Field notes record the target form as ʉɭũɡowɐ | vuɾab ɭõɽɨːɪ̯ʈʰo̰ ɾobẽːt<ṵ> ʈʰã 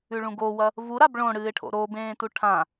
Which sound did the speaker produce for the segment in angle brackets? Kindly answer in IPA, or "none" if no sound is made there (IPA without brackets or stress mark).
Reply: u